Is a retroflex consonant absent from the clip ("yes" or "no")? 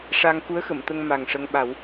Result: no